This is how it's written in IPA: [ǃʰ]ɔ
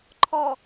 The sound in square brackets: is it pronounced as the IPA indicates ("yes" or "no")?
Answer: yes